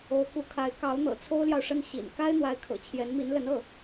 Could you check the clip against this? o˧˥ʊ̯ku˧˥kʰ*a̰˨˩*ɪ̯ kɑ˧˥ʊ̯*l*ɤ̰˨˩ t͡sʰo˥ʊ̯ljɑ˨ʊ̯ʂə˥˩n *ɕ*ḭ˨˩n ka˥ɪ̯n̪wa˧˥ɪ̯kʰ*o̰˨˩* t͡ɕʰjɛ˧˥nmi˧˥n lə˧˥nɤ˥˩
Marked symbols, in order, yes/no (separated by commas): no, no, yes, no